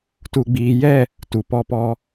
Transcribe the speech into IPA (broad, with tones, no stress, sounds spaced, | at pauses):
t u˨ ɡ͡b iː˨ j ɛ˦˨ | t u˨ p ɔ˦ p ɔ˦